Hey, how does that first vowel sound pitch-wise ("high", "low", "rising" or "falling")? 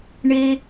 low